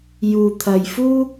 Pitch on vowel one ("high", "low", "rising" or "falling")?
low